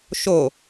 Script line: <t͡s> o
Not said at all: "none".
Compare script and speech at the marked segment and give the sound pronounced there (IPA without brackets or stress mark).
ʃ